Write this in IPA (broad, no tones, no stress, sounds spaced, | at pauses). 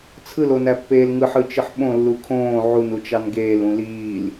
t͡sʰ ɯ l o n æ pː eː l ŋ ɯ ħ ɯ t͡ʃ ɯ ħ ɓ õ lː u kʰ õː ʕ u n u t͡ʃ ɑ n ɡ eː l ũ l iː l